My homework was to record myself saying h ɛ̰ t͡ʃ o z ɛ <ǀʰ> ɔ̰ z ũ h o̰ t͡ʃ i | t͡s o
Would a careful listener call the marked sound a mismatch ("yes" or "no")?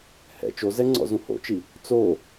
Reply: yes